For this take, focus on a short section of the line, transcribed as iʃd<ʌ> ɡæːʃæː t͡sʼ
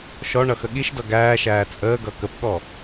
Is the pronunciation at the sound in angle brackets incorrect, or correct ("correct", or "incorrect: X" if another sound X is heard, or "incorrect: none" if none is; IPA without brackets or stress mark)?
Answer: correct